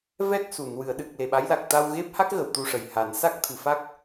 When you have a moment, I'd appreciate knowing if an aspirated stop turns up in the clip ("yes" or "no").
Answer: yes